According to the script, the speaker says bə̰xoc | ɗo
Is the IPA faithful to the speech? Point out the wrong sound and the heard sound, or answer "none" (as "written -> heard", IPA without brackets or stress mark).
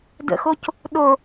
b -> d